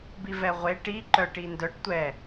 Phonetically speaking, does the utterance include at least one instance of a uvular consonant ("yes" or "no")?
yes